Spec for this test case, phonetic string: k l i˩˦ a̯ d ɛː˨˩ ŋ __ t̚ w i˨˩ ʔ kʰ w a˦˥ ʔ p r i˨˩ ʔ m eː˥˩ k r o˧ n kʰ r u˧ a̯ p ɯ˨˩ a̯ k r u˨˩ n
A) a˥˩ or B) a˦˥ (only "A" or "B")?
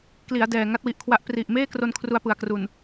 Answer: B